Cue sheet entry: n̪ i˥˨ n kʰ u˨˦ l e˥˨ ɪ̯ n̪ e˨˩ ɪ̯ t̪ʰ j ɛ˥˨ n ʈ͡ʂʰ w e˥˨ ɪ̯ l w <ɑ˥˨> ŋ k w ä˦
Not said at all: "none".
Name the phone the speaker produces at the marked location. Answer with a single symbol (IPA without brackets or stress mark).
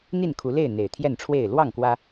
ɑ˥˨